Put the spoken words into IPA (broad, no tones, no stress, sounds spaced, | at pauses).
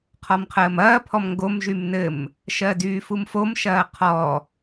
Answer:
qʰ ɔ m qʰ əː m ɐː pʰ ɔ m ŋ ɡ o m ʒ y m n ɘ m | ʃ ɜ d yː f u m f o m ʃ ɐː qʰ ɔ